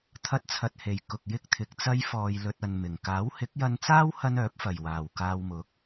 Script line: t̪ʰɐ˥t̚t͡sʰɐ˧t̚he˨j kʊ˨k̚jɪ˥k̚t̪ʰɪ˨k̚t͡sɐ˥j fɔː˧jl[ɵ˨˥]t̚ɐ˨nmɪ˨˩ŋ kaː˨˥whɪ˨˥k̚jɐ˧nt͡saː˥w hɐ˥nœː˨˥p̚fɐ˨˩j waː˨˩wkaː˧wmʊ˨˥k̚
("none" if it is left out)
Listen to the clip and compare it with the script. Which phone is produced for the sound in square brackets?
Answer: ɵ˧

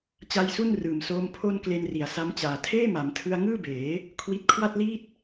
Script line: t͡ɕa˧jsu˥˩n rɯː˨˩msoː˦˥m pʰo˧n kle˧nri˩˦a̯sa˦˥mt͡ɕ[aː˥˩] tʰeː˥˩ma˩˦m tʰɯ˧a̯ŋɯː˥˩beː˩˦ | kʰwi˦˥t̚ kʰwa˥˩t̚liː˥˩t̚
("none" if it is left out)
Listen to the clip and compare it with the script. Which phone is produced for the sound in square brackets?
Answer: aː˨˩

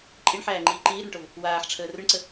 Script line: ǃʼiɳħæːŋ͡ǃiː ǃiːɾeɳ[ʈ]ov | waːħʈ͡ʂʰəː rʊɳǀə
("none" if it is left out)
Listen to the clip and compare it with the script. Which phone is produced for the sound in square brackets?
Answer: ʈ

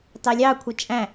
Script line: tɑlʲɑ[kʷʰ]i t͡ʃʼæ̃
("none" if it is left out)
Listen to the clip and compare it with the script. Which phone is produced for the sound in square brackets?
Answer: kʷʰ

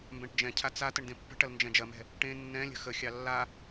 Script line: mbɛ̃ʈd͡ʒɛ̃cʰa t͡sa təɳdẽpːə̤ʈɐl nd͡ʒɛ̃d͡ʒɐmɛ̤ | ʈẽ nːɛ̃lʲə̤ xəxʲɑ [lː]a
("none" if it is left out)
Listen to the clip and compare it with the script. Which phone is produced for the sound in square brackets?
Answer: lː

